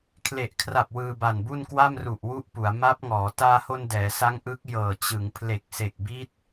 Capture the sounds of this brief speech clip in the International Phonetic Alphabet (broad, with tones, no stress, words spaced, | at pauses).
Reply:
kʰle˨˩ʔkʰra˨˩p̚ wɯː˧ba˨˩nbu˥˩n kwa˥˩mru˨˩ʔwu˦˥ʔ pu˩˦a̯ ma˦˥p̚ ŋɔː˩˦ taː˧ho˧n dɛː˩˦sa˦˥ŋ ʔɯ˦˥k̚ jɤː˨˩t͡ɕɯ˩˦ŋ pʰle˨˩k̚se˨˩k̚bi˦˥t̚